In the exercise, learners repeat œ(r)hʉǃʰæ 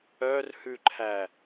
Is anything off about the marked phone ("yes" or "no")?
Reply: no